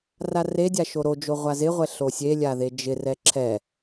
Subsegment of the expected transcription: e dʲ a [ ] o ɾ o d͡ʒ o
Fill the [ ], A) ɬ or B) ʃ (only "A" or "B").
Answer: B